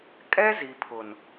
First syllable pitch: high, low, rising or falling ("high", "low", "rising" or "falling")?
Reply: high